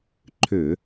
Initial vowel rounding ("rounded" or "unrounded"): rounded